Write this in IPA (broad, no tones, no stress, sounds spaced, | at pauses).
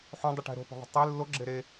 ħ õ dˤ ɯ ʈ ɛ̤ ɾ o̤ p o̤ ðˤ o̤ tˤ e lː o ɡ͡ǁ e ɾ e